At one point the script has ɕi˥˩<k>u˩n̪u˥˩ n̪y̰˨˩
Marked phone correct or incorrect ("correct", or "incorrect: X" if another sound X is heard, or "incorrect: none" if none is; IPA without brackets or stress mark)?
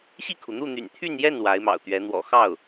incorrect: kʰ